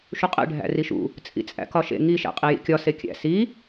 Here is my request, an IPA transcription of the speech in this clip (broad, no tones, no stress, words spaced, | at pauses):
ʃuqʼḛ ɖʱæ̰riʃṵ | t͡sʼḭt͡sʼæ̰kɒʃḛ ŋi ʃæ̰qʼijḭkʲɒ sekʲæ̰ si